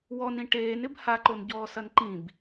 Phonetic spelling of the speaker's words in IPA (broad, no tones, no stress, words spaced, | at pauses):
wɔnĩ ʈeːnɪb haǃonɟɔːsɐn ǃĩb